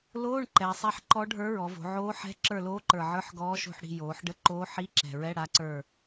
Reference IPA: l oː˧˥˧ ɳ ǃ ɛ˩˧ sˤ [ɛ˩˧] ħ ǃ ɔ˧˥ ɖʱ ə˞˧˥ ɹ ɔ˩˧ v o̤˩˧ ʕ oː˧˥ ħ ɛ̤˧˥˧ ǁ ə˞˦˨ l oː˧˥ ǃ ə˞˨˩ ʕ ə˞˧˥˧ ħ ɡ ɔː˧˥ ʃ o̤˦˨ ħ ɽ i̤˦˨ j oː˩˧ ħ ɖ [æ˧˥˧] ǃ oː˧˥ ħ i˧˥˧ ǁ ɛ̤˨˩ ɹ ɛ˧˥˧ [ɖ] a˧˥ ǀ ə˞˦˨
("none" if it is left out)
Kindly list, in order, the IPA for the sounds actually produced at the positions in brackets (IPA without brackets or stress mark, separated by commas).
ɛ˧˥˧, ə˧˥˧, ɽ